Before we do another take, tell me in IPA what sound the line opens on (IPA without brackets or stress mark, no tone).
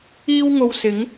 iː